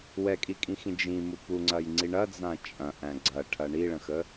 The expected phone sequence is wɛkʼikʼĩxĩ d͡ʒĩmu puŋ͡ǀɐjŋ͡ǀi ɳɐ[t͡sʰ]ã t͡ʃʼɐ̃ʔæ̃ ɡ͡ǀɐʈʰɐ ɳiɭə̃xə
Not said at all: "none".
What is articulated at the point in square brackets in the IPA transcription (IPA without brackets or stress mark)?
d͡z